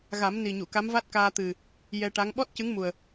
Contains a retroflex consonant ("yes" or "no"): yes